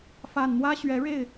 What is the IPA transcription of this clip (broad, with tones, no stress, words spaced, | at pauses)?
fa˨˩nn̪wä˦ɕɥɛ˨˦ɻe˥˨ɪ̯